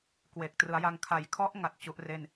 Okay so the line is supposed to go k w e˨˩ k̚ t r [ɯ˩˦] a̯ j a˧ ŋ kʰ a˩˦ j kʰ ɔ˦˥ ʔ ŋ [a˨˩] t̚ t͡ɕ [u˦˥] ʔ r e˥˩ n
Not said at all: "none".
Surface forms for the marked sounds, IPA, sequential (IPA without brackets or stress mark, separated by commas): ɯ˩˦, a˨˩, u˦˥